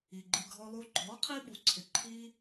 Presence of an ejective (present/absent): absent